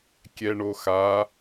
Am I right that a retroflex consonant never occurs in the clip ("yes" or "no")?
no